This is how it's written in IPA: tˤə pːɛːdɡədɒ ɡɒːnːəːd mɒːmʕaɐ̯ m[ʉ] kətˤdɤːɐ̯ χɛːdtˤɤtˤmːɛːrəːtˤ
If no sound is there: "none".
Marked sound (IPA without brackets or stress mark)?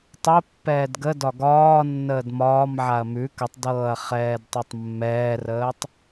ʉ